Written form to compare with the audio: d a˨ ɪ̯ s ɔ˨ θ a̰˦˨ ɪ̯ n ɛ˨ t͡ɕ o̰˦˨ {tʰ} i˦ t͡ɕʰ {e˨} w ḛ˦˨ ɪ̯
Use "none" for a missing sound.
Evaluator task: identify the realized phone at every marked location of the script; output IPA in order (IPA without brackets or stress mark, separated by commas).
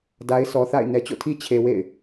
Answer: tʰ, e˨